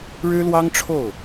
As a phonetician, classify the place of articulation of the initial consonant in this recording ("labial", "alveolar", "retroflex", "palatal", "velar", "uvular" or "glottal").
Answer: retroflex